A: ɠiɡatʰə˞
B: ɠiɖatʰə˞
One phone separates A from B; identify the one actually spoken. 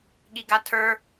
A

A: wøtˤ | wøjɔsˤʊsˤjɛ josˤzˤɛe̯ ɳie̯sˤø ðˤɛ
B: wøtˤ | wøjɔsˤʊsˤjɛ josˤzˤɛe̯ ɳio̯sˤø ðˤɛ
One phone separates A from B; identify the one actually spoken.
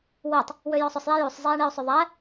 B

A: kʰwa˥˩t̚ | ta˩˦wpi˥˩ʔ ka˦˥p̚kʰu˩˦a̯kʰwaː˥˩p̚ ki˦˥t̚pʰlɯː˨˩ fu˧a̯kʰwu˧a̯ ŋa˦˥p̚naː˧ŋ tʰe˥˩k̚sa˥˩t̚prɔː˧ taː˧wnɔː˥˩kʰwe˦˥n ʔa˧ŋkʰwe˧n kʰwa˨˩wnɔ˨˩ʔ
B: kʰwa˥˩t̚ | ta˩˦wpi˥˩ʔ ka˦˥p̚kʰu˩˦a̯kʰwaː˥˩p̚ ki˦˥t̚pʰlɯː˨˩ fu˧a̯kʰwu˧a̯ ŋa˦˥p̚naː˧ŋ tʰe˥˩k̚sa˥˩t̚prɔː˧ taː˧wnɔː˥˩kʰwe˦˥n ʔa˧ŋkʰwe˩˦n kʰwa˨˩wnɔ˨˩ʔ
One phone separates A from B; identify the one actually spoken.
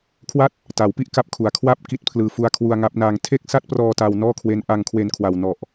A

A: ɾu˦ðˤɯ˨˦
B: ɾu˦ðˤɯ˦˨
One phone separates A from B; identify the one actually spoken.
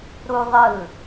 B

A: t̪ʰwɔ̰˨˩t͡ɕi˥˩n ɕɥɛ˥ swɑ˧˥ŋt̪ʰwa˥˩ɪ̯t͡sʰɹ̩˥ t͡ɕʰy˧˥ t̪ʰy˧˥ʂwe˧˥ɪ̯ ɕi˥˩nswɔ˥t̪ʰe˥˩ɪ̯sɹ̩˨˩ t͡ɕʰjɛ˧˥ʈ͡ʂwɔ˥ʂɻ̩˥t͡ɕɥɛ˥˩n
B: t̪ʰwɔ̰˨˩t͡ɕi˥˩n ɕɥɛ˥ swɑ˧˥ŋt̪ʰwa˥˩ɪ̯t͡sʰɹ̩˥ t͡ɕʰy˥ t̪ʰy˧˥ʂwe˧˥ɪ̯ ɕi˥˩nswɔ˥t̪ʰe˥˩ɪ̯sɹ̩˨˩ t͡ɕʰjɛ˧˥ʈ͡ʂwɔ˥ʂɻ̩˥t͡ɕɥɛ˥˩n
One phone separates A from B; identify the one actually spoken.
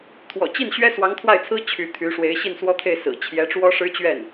A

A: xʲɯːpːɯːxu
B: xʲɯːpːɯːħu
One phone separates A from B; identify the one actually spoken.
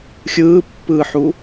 B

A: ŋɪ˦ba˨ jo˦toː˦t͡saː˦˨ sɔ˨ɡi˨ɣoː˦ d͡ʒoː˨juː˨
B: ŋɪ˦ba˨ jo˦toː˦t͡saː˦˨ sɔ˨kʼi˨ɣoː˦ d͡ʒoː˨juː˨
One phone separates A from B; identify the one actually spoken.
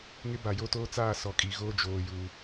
B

